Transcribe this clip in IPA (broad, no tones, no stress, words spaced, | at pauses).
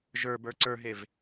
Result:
ʒə˞bə˞ ǀə˞ɦev